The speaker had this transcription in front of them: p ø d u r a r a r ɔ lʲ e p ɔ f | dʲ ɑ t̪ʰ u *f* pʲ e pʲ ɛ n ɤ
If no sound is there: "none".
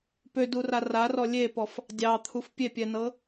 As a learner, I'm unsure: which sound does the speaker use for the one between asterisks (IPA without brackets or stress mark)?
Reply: f